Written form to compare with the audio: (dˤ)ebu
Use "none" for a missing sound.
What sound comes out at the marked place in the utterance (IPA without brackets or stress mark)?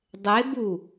dˤ